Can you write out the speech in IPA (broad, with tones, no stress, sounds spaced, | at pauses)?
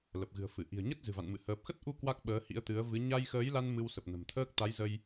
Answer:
l ə˨˩ p̚ ɣ ɨ̤˨˩ ə̯ f ɨ˧˩ ʔ i̤˨˩ ə̯ ɲ ə˦˥ t̚ z ɨ̤˨˩ v a̰˧˨ n m ɨ̰˧˨ h əː˨˩ p̚ x ə˦˥ t̚ ʔ u˧ k w a˦˥ k̚ ɓ əː˨˦ h ḭ˧˥ ə̯ t̪ ɨ˨˦ ə̯ v ɨ˨˦ ɲ a˧ j x əː˨˦ j l a˧ n m ɨ˧ w s ə˨˩ p̚ n ə̤˨˩ m t̪ʰ əː˦˥ k̚ t̪ a˨˦ j z ə˧ j